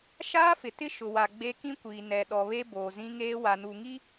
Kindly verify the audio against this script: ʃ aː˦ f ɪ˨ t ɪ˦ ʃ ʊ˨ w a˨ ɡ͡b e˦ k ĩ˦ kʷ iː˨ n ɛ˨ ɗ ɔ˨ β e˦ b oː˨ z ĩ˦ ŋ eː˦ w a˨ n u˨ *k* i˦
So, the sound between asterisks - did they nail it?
no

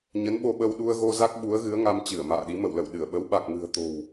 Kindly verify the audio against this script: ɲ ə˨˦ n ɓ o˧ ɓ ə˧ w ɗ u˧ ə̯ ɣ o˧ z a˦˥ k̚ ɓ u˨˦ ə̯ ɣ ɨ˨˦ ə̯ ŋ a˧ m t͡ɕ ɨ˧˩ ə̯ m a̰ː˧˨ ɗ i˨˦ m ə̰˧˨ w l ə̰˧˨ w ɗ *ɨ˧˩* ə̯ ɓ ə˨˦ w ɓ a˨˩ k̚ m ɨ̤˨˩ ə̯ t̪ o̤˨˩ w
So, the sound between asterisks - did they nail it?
yes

